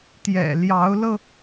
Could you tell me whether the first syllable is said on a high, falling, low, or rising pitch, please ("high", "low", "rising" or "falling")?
low